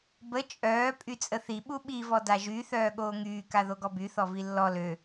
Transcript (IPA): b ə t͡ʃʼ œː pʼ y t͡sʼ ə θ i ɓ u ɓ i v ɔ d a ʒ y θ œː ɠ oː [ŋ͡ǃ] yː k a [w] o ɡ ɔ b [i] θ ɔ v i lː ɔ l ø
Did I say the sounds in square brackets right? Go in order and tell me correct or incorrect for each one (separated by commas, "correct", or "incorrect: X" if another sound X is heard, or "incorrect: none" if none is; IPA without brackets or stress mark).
incorrect: ŋ, incorrect: ð, incorrect: y